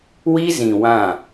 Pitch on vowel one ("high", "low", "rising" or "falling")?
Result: high